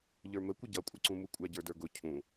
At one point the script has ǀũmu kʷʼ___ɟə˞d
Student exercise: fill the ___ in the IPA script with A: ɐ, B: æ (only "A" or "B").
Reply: B